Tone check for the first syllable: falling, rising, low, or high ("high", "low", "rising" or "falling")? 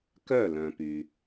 falling